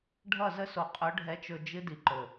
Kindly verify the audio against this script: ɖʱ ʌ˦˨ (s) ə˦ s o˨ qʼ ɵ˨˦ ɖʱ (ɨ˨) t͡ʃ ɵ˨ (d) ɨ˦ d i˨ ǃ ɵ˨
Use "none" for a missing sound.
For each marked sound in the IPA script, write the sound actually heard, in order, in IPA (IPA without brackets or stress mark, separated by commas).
z, ɛ˨, d͡ʒ